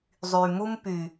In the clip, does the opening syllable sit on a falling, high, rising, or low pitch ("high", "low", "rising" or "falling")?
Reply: low